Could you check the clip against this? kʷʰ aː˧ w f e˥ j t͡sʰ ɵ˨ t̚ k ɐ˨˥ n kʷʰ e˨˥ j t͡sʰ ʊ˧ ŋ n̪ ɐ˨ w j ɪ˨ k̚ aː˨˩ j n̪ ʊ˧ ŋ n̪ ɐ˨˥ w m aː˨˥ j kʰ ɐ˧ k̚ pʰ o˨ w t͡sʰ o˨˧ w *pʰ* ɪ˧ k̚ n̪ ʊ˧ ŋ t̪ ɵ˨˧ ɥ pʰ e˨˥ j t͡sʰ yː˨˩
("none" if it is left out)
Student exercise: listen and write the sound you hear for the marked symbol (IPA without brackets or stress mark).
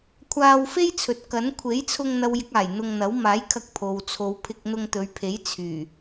pʰ